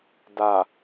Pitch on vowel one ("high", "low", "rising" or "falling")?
low